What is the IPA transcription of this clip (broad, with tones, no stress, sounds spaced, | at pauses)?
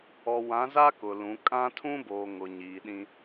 ɔ˨ w ã˨˦ z a˦ k ʊ˨ l ũ˨˦ kʼ ã˦ tʰ ũ˦ b oː˨ ŋ ʊ˨ ɲ iː˨ ɗ ĩ˦